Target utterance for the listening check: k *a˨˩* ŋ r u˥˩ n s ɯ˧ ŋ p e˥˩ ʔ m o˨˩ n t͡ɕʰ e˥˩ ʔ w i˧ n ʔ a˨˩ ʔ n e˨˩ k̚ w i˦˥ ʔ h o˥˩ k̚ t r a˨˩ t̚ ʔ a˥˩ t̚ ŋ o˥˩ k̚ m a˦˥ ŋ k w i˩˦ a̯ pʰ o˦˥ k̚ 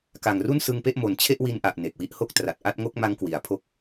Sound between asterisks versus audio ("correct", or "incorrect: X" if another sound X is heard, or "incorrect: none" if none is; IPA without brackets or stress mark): correct